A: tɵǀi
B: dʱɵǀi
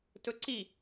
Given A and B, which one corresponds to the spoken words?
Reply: A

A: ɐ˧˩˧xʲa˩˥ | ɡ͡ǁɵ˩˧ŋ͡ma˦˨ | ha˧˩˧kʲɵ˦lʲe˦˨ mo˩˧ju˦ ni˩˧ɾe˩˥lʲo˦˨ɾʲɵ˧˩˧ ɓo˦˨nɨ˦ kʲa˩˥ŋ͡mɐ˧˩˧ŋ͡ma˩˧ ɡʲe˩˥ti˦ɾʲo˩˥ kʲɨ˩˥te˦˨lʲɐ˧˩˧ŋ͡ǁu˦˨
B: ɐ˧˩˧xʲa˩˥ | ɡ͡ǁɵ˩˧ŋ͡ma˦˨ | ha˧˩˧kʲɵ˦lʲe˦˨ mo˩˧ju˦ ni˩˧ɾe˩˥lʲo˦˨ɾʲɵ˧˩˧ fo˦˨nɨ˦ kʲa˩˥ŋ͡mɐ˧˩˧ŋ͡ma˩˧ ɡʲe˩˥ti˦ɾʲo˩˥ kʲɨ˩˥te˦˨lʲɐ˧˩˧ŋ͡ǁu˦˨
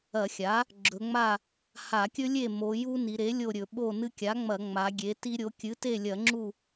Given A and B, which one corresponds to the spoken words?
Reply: A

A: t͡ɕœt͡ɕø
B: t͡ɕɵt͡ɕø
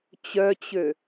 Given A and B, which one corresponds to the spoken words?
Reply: A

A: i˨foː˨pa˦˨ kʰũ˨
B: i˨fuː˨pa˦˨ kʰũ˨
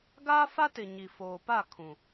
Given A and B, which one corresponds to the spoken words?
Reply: A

